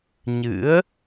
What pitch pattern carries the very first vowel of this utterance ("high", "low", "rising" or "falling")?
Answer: rising